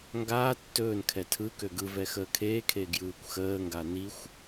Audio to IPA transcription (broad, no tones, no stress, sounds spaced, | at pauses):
ŋ ɡ aː tː ɵː n kʰ ɛ tʰ ɯ k ø ɡ ɯ v ɛ x əː kʰ eː kʰ e ɡ j ɯː kʷ x əː ŋ ɡ a n i xʷ